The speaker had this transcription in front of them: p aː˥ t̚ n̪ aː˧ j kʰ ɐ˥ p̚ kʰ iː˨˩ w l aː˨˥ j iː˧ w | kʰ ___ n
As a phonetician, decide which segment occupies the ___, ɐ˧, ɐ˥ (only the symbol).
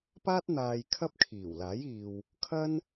ɐ˥